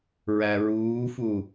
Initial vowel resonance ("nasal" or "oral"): oral